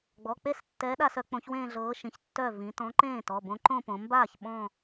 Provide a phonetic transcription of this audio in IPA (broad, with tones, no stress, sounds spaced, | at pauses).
ɡ͡b ɔ˩˧˩ k͡p e˥˧ s tː ɛː˨˥ ɗ aː˧ s œ˩˧ k͡p õ˨˥ ç w ẽː˥˧ ɮ ɤː˨˥ ʃ ĩ˩˧ ç tː œ˥˩ v ĩ˩˧ t ɔ̃˨˥ ǃ ẽː˥˩ t ɔ˩˧˩ b õ˨˥ ǃ õ˥˧ p õ˩˧ m b aː˥˩ ç ɓ ɔ̃˥˧